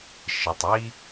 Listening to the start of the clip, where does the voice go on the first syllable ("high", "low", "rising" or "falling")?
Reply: low